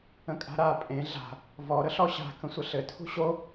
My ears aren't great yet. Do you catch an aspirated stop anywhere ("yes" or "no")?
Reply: yes